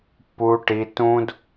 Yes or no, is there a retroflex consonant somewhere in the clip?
yes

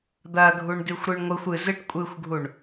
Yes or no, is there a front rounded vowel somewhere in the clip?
no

